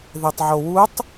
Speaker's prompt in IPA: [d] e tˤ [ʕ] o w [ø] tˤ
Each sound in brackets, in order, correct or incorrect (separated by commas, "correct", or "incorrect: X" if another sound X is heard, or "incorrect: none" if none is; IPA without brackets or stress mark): incorrect: ð, correct, incorrect: u